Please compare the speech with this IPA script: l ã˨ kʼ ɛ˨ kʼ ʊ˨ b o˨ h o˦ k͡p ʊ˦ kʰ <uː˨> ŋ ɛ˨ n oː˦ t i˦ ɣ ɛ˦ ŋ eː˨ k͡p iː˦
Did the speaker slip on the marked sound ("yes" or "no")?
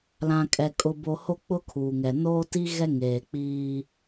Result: no